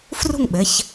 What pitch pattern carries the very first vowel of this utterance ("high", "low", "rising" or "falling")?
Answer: falling